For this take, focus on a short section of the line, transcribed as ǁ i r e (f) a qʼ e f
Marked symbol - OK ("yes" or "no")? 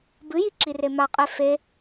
no